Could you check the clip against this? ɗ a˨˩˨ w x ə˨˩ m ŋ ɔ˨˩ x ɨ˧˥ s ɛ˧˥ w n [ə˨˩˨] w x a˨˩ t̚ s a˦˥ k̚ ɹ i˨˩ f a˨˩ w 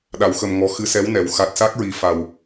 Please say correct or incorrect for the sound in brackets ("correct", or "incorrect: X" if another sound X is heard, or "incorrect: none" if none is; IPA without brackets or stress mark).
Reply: incorrect: ɛ˨˩˨